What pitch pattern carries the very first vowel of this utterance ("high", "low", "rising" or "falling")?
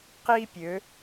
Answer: high